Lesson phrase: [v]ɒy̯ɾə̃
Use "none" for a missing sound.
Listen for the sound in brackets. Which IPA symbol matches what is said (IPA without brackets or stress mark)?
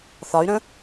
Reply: θ